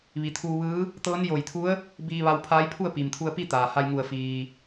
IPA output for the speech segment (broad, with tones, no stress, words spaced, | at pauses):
ʋi˩˧t̪ʰuː˧ʋɯː˧˥ | t̪ɤː˧˥njo˧˩jt̪ʰu˧˥ə̯ | biː˧ ʋa˧wpʰaː˧˥j pʰu˥˨ə̯piː˩mt̪ʰu˧ə̯pi˥˨ t̪aː˩ ha˧jŋu˧˩ə̯ fiː˩